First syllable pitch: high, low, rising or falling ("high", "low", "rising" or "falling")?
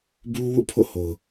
high